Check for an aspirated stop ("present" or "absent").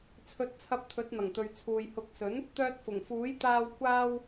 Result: present